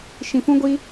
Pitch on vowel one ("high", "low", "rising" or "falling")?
low